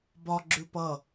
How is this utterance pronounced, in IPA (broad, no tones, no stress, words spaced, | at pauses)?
bɒ ɡ͡ǁʉpʌ